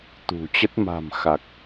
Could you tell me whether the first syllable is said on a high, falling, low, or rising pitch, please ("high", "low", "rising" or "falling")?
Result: low